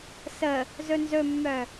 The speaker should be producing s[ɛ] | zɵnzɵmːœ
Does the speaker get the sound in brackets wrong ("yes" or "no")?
yes